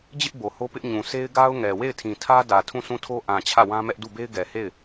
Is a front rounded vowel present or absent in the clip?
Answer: absent